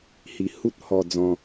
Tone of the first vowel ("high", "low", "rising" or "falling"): low